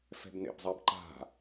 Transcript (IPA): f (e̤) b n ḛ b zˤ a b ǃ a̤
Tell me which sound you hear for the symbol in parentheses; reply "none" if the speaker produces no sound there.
ɛ̤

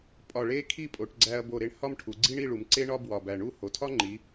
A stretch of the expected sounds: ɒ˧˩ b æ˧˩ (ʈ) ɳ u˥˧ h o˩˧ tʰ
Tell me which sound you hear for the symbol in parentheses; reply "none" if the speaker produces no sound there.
none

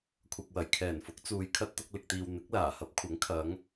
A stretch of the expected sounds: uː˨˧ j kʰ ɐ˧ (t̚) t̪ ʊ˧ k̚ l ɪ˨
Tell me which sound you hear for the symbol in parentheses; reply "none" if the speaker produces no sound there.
t̚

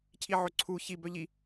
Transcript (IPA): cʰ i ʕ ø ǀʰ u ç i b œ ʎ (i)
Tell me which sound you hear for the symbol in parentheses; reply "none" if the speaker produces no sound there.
i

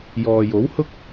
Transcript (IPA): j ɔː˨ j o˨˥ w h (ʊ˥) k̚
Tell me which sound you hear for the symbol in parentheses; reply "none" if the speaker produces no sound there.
ʊ˥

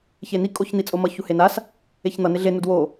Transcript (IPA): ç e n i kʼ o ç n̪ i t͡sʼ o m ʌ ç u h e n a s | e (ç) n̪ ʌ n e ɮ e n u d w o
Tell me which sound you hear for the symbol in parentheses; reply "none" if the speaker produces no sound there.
ç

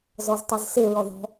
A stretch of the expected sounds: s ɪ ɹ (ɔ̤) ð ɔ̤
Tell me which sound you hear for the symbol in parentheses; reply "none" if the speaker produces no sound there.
ɔ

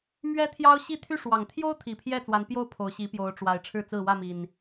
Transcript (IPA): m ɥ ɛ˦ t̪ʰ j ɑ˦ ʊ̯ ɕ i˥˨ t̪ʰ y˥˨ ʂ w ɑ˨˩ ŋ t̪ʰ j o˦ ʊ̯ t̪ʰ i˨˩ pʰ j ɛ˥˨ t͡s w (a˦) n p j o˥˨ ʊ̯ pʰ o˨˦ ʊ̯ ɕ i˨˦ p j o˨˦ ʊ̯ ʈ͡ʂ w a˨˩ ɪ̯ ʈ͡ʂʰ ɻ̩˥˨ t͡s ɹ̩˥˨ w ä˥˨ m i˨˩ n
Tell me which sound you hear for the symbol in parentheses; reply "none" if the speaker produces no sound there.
a˨˦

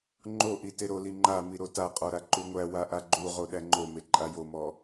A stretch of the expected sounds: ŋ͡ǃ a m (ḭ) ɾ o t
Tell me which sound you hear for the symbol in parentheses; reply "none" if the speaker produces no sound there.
i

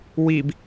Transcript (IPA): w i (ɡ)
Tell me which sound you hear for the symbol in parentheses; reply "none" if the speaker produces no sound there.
b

